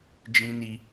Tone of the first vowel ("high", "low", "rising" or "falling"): high